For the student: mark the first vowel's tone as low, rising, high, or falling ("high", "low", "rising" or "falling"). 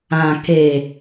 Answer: low